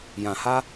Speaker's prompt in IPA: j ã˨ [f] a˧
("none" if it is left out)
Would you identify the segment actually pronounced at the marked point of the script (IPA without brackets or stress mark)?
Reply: h